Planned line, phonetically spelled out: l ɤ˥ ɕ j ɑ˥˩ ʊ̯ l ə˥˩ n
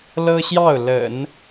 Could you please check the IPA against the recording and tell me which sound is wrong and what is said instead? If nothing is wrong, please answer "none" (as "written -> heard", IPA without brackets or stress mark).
ə˥˩ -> ə̰˨˩˦